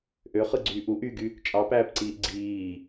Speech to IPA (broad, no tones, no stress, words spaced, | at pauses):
ʔøχɯɡ͡ǀyː ʔu ʔyɡy | t͡ʃʼɑpæːpǀiːʔ ɡ͡ǀiː